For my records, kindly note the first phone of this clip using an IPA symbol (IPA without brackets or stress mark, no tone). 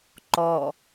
ǃ